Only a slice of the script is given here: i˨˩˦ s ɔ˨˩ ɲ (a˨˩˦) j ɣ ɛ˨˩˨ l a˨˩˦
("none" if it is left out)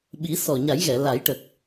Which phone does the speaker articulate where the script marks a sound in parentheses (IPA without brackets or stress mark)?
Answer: a˨˩˦